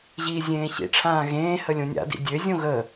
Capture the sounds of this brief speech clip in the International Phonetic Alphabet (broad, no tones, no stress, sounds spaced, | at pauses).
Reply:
ʑ iː zʲ ẽː ɕ ḭ ʈ͡ʂʰ ãː ɣ ẽː h ə lʲ õ nʲ a̰ d ḭ dʲ ø zʲ õ ɣ ə